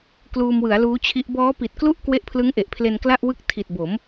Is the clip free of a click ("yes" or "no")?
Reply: yes